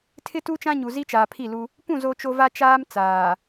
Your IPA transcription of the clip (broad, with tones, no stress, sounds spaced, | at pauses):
tʰ ɪ˦ t u˦ t͡ʃ ã˦ ɲ u˨ z i˦ t͡ʃ aː˨ pʰ i˦˨ l u˦ | p ũ˦˨ z o˦ t͡ʃ o˦ v a˦ t͡ʃ aː˦ m t͡s aː˨